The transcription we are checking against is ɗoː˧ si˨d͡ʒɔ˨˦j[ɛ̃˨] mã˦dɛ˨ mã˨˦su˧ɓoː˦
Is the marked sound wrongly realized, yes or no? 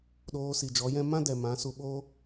yes